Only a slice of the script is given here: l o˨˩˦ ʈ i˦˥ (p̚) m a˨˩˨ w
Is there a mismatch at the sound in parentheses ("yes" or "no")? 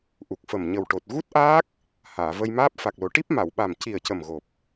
no